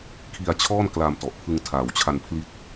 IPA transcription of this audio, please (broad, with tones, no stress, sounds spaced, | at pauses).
kʰ i˧ a̯ t͡ɕʰ ɔː˥˩ n k l a˧ m t ɔ˨˩ ʔ pʰ ɯ˧ ŋ tʰ aː˨˩ w t͡ɕʰ a˧ n pʰ l i˦˥ t̚